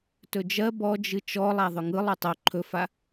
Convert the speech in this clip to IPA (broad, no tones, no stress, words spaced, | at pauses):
tɵd͡ʒɜ bɔd͡ʒɨ t͡ʃɔlˠa ðˤɵŋɯ lˠɵtˤo ǃʰɵfa